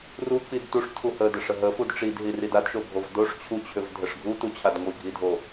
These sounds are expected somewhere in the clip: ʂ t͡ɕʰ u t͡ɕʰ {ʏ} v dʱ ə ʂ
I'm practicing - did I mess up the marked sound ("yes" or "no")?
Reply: no